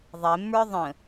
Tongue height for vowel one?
mid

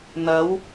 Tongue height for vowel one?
low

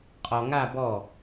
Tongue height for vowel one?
mid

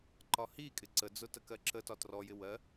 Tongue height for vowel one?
low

